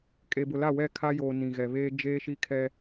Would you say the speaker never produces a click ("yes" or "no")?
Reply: yes